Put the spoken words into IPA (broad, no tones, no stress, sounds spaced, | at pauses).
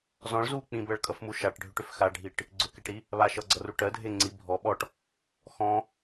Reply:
z ɔ̃ ɭ z u k͡p ĩ b ɜ ɭ kʼ ʌ f m u ʃ a ʈ ɖʱ ʏ ʈ ʏ f x a ɖʱ i ʈ | ɡ͡ǀ ʏ k e ʈ ɾ i | β a ʃ ʌ ɡ͡ǀ ʌ r u ʈ ɜ dʱ e ŋ͡ǀ i bʱ ɔ ɓ ɔ ʈ | x ɔ̃